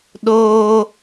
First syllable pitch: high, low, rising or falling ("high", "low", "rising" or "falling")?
high